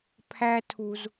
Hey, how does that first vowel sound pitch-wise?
high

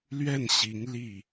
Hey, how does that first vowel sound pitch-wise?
falling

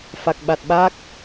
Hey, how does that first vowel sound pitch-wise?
low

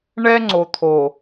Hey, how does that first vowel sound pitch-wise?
high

